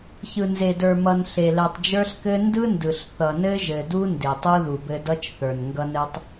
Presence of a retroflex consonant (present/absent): absent